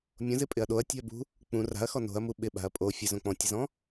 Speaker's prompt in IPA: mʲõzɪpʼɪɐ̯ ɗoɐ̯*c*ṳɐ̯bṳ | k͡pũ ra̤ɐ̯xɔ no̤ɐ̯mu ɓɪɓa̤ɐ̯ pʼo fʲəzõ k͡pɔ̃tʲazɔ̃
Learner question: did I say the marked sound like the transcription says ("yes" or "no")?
no